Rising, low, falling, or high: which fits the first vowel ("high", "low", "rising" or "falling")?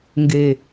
low